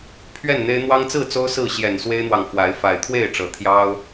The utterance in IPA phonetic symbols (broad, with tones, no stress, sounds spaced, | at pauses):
pʰ ɥ ɛ˥˨ n n̪ e˦ ɪ̯ n̪ w ɑ˦ ŋ t͡s ɹ̩˥˨ t͡s o˦ ʊ̯ s ɹ̩˥˨ ɕ j ɛ˨˩ n s w e˦ ɪ̯ n̪ w ɑ˨ ŋ f w a˨˦ ɪ̯ f a˨˩ ɪ̯ t̪ʰ w e˥˨ ɪ̯ ʈ͡ʂ ɤ˨˦ t̪ʰ j ɑ˦ ʊ̯